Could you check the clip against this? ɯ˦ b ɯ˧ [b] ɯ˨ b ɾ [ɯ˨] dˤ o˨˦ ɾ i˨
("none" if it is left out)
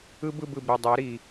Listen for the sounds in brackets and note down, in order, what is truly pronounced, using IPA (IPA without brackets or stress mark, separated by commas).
b, ɯ˨